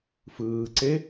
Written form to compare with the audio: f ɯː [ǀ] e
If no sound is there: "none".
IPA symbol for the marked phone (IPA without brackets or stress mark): ǀ